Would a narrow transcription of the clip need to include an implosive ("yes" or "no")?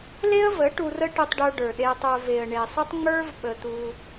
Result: yes